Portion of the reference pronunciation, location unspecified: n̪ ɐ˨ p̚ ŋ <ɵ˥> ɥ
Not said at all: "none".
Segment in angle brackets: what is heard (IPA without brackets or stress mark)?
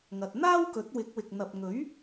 ɵ˨˥